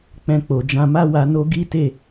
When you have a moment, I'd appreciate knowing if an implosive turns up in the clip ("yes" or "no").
no